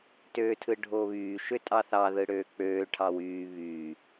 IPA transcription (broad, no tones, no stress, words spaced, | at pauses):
tøːtʰɯɖʱoβyː ʃøtʼɑθɑ ðɯɽøːk͡pøː ʈʰɑwyː βy